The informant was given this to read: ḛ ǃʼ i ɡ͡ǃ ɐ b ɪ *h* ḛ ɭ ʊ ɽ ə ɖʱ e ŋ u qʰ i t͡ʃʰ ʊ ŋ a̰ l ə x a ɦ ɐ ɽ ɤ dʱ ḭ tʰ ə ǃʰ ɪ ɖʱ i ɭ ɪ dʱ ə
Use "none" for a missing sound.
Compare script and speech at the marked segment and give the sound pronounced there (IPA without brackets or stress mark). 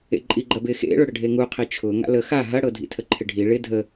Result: x